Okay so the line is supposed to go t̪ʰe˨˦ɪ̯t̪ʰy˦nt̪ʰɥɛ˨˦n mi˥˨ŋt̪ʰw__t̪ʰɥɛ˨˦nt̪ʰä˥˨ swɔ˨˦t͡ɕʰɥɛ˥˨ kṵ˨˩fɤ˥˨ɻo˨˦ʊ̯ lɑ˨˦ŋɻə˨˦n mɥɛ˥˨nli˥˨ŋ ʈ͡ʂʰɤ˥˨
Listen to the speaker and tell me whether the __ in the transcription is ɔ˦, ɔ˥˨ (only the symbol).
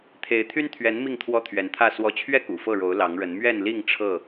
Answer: ɔ˦